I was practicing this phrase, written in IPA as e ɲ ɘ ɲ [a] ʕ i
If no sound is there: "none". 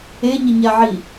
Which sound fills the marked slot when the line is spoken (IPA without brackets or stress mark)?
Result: a